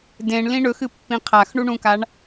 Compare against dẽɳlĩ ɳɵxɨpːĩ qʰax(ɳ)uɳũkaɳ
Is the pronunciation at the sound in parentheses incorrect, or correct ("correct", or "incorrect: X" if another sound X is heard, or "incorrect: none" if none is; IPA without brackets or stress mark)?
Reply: correct